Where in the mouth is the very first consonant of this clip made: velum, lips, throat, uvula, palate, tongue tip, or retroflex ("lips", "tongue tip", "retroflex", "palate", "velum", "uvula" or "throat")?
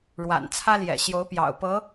retroflex